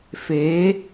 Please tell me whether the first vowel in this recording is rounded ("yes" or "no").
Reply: no